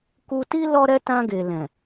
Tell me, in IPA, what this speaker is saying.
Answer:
k u˧ t i˦ l ɔ˦ ɾ ɛ˦ t ã˧ ɡ e˨ l ɛ̃˨

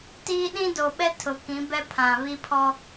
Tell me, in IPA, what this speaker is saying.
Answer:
t iː˦ ɗ ĩ˦ d o˨ ɓ ɛ˦ tʰ ʊ˨ k ĩ˨˦ b ɛ˦ pʰ ã˨ β i˦ pʰ ɔ˦

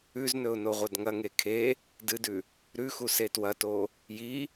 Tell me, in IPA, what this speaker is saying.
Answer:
ʉ z n ɵ ʊ̯ n o ʁʷ ɐ d ŋ ɐ ŋ e kʰ e | d ɨ d ʉ | ɾ ʉ x u s e t w ɐ t o | j i

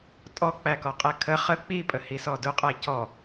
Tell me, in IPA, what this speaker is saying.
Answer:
tʼ ɔ k͡p æ k ɔ qʼ ɛ kʰ ə χ ə k͡p i pʼ ə h i s ɔ d ʊ qʼ æ c ɔ

